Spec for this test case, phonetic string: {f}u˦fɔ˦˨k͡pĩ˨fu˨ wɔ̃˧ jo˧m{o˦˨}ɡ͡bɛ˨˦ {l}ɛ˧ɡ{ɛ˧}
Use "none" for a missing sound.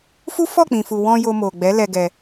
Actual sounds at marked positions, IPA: f, o˨, l, ɛ˧

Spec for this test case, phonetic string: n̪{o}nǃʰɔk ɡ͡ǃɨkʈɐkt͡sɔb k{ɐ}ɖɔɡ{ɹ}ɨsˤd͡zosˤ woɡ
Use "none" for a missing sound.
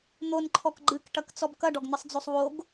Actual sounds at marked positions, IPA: o, ɐ, n̪

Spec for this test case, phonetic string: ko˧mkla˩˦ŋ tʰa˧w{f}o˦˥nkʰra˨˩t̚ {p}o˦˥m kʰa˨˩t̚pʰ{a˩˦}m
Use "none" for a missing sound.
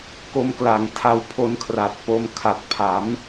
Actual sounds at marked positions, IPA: pʰ, p, a˩˦

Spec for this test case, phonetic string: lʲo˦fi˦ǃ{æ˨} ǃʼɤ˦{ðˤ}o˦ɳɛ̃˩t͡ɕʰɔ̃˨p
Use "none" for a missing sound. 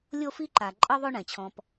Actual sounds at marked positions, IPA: a˨, ðˤ

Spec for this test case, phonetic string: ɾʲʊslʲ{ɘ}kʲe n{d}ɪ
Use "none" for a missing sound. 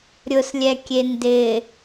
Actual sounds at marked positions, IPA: ɛ, d

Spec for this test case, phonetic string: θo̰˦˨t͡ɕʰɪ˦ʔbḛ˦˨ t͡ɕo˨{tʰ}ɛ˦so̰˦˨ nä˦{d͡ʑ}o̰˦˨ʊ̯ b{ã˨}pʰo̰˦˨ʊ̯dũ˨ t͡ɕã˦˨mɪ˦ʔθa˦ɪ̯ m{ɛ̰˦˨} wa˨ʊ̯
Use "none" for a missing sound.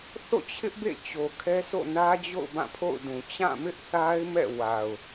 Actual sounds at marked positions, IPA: kʰ, d͡ʑ, ã˦˨, ɛ̰˦˨

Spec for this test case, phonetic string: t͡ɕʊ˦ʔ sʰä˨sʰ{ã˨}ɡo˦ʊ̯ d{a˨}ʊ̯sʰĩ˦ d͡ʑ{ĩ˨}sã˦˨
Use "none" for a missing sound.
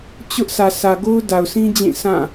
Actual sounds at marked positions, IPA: ä˨, a˨, ĩ˦˨

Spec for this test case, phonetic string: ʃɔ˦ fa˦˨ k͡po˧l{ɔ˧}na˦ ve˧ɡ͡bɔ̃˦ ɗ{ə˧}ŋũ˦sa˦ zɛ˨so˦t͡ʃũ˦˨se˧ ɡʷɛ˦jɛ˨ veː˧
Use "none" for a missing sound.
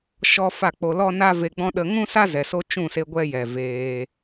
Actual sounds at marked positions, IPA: ɔ˦, ə˧

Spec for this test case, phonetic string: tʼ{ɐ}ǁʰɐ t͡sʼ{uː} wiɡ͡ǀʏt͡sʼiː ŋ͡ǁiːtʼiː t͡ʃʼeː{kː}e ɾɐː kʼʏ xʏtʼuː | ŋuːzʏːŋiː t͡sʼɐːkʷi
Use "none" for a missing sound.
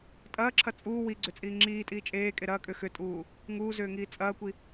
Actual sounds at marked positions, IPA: ɐː, uː, kʼ

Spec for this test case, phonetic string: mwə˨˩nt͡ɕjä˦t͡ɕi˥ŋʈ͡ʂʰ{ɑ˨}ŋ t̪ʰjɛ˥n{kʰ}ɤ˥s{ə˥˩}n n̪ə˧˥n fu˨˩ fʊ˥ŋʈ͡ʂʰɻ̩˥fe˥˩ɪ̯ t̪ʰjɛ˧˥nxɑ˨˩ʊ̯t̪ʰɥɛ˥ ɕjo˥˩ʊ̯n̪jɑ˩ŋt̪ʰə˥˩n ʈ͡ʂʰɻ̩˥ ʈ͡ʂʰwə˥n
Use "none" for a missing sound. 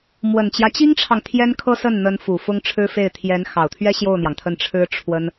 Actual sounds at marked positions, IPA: ɑ˨, kʰ, ə˥˩

